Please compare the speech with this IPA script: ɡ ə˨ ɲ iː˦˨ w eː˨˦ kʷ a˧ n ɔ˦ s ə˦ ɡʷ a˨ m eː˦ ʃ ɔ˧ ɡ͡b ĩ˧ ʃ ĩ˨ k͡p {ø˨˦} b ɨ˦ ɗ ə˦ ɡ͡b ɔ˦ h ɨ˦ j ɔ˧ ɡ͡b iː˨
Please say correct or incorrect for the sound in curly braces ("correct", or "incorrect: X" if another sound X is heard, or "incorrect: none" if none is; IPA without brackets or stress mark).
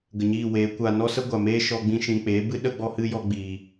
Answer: incorrect: e˨˦